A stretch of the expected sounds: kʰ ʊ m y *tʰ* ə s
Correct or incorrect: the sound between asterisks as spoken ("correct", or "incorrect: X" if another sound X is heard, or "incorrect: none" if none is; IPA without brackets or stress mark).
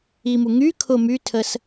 correct